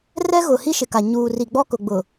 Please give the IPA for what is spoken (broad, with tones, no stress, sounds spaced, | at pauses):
r ɛ˦ ɣ ʊ˨ h i˦ ʃ ɪ˨ k a˨ ɲ uː˨ r i˨ ɡ͡b ɔ˦ k ʊ˨ ɡ͡b ʊ˨